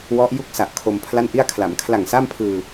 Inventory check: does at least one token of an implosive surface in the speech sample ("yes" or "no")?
no